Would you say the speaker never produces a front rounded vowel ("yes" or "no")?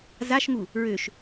no